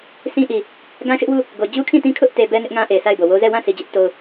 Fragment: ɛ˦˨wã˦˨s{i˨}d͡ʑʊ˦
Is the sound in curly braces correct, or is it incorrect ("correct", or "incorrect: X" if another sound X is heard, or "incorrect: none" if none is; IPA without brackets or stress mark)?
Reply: correct